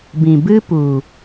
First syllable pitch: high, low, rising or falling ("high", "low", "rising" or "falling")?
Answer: low